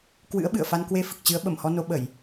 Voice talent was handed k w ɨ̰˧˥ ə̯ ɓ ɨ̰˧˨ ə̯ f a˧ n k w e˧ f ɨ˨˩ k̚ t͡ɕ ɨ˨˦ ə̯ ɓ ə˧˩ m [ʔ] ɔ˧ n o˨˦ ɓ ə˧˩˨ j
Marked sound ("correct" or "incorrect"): incorrect